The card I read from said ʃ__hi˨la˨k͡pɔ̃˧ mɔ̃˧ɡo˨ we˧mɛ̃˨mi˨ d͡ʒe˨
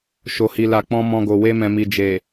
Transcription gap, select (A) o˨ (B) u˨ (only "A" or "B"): A